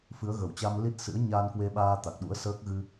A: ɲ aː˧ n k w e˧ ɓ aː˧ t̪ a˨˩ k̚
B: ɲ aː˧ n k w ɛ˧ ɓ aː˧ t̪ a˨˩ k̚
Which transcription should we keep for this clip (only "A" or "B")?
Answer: A